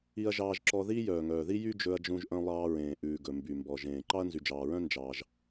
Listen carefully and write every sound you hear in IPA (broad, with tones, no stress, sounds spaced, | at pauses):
i˧ ɐ̯ ʒ ɑː˧ ʒ ǁ ɔ˧ ð iː˥ j œː˩ ŋ œː˩ ð i˥ j y˥ d͡ʒ ɵ˧ ɐ̯ d͡ʒ ũ˧ ʒ ʔ œ̃˧ lˠ ɑː˧ ɹ ẽː˩ ʔ ʉː˩ ɡ ɵ˩ m b y˩ m b ɔ˩ ʒ ẽː˩ ǃ ɑ˥ ɐ̯ n z y˩ d͡ʒ ɑː˩ ɹ œ̃˥ n d͡ʒ ɑː˩ ʒ